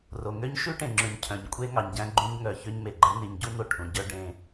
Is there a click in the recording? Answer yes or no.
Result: yes